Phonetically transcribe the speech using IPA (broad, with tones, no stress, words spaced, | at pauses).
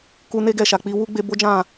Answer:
ku˧ ne˦ɡɛ˦˨ʃa˨k͡pi˧ wu˦ɡ͡be˧bo˦d͡ʒã˦˨